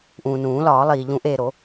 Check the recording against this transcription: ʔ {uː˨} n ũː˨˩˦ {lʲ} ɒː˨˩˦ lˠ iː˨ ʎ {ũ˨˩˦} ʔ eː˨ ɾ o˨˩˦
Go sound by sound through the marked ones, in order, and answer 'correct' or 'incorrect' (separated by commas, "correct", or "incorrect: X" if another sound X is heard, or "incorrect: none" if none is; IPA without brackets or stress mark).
incorrect: ũː˨, incorrect: l, correct